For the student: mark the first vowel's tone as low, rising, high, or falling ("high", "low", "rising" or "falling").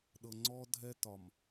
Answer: low